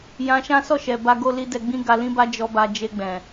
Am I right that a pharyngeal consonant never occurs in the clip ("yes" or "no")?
yes